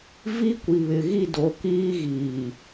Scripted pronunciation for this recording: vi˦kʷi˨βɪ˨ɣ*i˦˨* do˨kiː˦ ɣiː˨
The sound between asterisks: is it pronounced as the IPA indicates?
yes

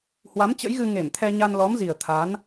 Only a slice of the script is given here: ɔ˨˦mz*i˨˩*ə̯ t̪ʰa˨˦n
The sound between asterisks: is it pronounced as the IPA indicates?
yes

